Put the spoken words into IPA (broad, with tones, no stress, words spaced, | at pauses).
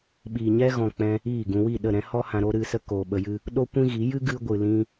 ɓiː˨ɲɛ˦ɣɔ̃˨k͡pɛ̃˧ | iː˦˨ɡũ˧ wi˦˨ɗə˦˨ ɾɛ̃˦hɔ˦ hã˧ɾo˦ ɾɨ˧sə˦koː˨ ɓə˧jɨ˦ | ɗo˦kʷĩ˦ɣi˨˦ jɨ˦ɡɨ˧ɡʷɨ˨lĩ˧